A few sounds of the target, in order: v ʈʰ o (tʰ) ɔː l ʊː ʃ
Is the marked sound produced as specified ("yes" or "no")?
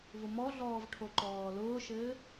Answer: no